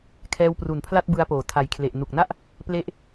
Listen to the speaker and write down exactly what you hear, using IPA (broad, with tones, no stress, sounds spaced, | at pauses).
kʰ ɛː˧ w p r u˨˩ n pʰ l a˥˩ t̚ b ɯ˦˥ a̯ p oː˩˦ tʰ a˨˩ j kʰ l e˨˩ ʔ n u˨˩ k̚ n a˥˩ ʔ | p l e˦˥ ʔ